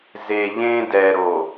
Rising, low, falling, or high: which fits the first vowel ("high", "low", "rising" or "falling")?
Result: low